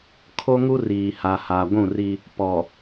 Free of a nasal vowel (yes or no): no